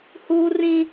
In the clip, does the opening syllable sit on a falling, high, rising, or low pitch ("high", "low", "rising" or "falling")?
high